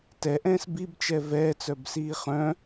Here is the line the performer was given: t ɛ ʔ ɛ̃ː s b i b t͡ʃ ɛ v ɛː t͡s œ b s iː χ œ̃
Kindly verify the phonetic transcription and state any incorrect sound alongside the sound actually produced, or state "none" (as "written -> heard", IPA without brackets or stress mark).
none